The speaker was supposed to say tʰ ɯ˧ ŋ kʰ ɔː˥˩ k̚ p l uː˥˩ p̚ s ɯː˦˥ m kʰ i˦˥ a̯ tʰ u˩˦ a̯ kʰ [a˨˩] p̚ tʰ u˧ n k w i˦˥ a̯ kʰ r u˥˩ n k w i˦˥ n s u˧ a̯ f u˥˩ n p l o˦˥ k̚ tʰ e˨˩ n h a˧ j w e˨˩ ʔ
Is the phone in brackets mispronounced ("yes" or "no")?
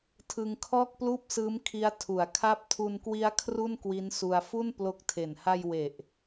yes